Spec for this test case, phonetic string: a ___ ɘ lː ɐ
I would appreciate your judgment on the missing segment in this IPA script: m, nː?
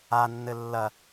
nː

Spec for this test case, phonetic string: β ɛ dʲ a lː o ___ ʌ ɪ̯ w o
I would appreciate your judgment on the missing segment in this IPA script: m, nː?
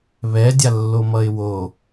m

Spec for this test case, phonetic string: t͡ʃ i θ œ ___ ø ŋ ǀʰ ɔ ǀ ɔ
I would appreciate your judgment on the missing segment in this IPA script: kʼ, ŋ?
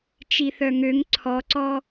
ŋ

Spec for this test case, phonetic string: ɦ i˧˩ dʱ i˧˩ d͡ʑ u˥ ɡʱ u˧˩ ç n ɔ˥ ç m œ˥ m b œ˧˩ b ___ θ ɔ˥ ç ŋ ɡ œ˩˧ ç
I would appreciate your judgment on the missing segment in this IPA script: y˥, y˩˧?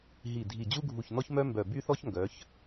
y˥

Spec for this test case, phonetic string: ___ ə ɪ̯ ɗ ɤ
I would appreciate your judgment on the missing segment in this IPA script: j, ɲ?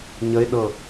ɲ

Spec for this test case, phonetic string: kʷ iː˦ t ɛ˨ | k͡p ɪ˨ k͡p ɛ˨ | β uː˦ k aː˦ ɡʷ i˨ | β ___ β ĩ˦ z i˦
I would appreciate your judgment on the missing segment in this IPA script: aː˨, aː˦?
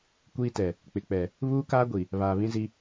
aː˨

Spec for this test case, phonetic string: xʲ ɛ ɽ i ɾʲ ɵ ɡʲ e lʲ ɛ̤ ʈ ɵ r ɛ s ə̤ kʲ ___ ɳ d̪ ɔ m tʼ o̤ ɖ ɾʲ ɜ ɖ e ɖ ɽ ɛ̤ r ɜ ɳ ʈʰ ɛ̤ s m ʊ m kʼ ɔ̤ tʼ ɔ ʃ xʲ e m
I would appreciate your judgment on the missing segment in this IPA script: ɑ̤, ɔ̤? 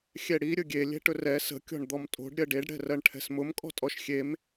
ɔ̤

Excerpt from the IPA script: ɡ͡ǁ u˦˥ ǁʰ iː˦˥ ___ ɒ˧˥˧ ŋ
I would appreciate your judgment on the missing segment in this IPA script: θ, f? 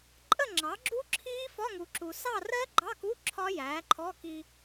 f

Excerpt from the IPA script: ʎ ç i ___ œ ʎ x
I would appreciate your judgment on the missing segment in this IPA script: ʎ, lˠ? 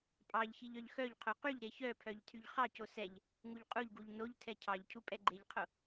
ʎ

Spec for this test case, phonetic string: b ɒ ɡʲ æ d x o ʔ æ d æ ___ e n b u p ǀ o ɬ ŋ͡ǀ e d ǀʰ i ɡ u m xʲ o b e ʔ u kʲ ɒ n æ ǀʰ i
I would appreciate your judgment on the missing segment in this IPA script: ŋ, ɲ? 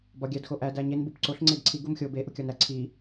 ɲ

